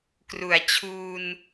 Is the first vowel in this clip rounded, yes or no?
yes